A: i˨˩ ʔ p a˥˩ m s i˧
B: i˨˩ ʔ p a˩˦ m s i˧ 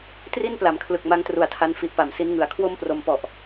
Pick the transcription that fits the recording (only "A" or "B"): B